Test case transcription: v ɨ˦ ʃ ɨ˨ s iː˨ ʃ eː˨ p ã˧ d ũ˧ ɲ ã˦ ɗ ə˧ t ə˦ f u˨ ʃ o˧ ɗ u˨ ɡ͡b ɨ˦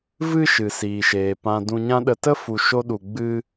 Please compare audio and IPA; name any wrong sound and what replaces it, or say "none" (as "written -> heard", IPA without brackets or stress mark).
none